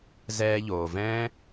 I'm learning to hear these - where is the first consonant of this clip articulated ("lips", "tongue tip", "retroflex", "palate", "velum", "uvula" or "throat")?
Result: tongue tip